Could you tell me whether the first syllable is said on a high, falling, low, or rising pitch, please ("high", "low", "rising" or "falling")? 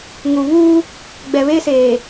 low